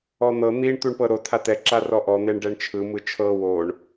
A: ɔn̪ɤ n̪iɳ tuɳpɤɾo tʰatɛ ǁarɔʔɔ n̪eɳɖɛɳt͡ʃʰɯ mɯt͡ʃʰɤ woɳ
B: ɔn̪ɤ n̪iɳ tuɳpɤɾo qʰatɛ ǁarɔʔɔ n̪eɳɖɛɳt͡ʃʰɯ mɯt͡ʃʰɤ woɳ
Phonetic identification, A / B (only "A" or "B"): A